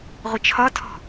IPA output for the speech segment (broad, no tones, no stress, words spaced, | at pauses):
ʁʷət͡ʃʰɒtʰɔ̤